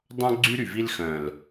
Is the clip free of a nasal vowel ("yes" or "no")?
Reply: no